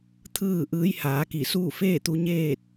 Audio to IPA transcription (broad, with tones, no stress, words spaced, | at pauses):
t̪ʰɯː˥˨ ʔɯː˧˥jhaː˩˧ki˧˩ suː˥˨feː˥˨t̪u˧ ɲeː˥˨t̚